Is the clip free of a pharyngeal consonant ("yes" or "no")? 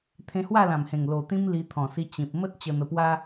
yes